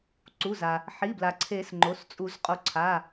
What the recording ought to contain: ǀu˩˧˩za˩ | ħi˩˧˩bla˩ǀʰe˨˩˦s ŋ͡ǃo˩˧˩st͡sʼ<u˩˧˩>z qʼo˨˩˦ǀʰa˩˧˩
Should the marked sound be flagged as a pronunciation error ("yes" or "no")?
yes